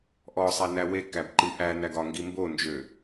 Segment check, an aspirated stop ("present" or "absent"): absent